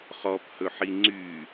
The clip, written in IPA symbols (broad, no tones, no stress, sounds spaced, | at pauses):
χ ɔ p h ɵ ħ i ŋ͡ǀ y